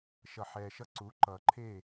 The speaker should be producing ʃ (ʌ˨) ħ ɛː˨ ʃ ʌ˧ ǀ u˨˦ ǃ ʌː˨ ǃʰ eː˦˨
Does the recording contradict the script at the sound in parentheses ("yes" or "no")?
no